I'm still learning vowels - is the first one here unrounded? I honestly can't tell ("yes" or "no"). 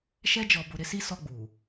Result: yes